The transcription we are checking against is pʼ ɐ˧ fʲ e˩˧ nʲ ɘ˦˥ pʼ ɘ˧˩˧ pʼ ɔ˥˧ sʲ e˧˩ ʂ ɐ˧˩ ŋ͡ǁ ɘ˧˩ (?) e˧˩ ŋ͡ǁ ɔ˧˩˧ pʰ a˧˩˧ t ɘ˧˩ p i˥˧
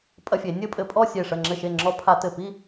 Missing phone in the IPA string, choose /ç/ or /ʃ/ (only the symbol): ʃ